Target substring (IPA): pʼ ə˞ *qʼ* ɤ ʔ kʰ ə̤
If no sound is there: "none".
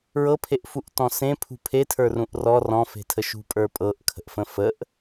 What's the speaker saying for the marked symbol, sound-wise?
pʼ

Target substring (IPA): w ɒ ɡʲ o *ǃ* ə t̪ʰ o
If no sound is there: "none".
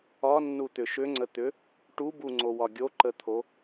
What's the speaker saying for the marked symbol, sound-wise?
ǃ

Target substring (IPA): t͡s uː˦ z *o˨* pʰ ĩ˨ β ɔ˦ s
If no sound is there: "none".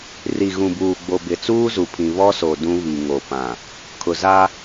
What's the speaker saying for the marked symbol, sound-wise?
u˨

